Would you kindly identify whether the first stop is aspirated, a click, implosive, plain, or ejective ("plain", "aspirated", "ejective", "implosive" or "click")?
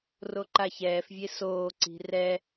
click